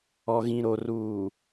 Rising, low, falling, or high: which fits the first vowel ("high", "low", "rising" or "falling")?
low